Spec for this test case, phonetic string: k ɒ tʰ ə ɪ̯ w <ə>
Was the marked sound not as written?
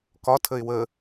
no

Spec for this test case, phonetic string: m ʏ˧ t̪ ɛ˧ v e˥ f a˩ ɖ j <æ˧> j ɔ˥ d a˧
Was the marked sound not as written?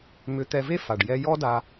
yes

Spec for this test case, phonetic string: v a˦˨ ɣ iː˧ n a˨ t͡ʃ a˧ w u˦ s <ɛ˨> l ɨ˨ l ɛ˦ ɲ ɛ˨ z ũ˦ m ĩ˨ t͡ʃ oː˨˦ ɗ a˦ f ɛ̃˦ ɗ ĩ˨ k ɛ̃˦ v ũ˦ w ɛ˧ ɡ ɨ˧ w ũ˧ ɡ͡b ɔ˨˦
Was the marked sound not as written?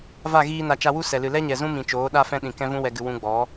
no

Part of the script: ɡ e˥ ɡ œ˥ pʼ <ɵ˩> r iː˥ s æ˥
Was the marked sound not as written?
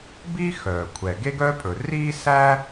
no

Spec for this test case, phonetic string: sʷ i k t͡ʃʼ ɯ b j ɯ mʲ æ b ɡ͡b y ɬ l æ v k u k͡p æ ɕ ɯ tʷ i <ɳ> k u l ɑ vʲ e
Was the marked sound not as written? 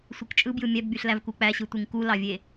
yes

